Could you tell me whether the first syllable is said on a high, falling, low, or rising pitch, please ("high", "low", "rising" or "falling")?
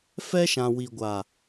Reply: high